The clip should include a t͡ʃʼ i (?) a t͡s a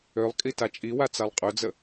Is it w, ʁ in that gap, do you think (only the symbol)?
w